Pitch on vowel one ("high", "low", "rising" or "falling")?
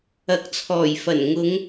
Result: rising